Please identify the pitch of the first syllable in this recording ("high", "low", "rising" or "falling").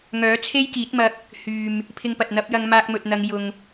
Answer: rising